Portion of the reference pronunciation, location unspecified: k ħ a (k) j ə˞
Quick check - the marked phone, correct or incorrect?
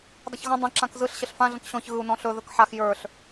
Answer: incorrect